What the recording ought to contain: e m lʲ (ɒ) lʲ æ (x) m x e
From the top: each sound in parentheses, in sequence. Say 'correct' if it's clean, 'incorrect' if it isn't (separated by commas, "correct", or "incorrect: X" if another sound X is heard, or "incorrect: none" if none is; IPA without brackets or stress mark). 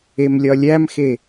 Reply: correct, incorrect: none